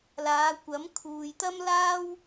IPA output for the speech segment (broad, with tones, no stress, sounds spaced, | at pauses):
l aː˨˧ kʷ ɐ˨˥ m kʰ uː˨ j t̪ ɐ˥ m l aː˥ w